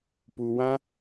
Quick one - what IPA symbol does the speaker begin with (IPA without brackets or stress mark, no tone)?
p